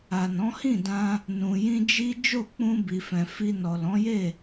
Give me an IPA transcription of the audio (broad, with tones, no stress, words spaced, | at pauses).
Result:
a˨nɔ̃˨˦hĩ˦˨dã˧ | nũ˨jĩ˧d͡ʒi˦ d͡ʒo˦˨k͡pũ˧bi˨fɛ̃˨ fi˧ nɔ˨lɔ̃˨˦je˦˨